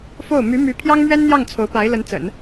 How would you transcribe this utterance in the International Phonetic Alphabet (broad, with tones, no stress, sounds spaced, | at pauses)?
f o˥˩ ʊ̯ m y˧˥ m y˧˥ pʰ j ɑ˥ ŋ m ɥ ɛ˥ n n̪ j ɑ˥˩ ŋ t͡sʰ o˧˥ ʊ̯ p a˧˥ ɪ̯ l ə˧˥ n t͡s ə̰˨˩˦ n